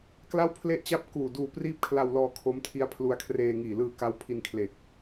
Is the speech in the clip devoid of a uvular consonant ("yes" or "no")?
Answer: yes